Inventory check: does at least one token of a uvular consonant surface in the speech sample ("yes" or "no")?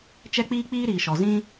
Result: no